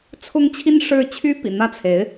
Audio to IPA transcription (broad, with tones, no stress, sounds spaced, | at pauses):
t͡sʰ ʊ˥ ŋ t͡ɕʰ i˥ n ʂ ɻ̩˥ t͡ɕʰ y˥ p ḭ˨˩ n̪ ä˥˩ t͡sʰ e˧˥ ɪ̯